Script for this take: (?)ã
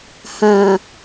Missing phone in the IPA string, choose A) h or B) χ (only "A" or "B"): A